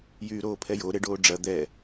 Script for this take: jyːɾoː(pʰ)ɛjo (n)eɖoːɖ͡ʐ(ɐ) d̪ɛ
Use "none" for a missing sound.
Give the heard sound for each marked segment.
pʰ, ɾ, ɐ

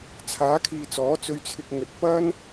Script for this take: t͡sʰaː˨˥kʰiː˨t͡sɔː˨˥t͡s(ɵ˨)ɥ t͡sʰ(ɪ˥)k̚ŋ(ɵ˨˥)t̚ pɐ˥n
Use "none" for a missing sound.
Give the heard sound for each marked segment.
ɵ˧, ɪ˧, ɵ˨

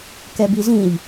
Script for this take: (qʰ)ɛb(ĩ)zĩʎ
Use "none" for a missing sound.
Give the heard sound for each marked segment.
k, i

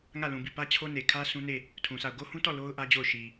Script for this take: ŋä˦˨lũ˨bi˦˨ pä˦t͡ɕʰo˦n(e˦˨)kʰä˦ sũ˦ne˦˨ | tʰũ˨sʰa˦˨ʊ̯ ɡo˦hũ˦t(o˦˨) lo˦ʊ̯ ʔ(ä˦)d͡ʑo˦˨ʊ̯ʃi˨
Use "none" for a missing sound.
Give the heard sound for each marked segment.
e˨, ɔ˦˨, ä˦

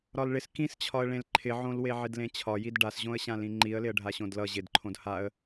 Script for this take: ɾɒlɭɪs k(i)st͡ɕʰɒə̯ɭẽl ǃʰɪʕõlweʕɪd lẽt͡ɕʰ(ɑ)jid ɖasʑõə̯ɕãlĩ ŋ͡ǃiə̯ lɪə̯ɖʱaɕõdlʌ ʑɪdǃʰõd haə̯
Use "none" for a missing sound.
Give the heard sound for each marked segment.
ĩ, ɒ

